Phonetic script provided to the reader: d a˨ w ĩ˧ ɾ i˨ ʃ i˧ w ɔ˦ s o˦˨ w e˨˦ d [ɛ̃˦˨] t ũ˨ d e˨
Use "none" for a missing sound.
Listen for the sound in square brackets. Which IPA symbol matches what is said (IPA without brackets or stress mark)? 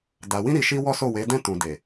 ɛ̃˦˨